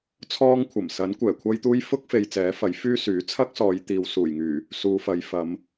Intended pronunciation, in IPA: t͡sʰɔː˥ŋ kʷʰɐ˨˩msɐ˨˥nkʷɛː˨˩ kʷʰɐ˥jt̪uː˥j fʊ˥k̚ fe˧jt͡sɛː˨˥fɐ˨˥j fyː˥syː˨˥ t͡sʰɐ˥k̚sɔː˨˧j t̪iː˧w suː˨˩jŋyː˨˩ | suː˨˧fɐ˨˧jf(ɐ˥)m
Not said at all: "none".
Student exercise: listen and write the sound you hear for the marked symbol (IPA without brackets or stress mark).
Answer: ɐ˨˧